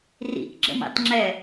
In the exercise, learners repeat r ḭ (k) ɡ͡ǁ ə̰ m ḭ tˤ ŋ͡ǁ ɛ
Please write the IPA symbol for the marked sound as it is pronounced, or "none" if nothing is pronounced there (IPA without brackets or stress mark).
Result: k